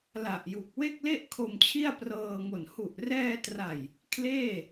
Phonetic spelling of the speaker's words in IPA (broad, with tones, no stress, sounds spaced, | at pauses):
l a˨˩ ʔ j u˨˩ k̚ w e˥˩ k̚ l e˥˩ ʔ kʰ o˧ m t͡ɕʰ i˥˩ a̯ p r ɤː˧ ŋ o˨˩ n h u˨˩ ʔ r ɛː˧ t r a˨˩ j | kʰ l eː˥˩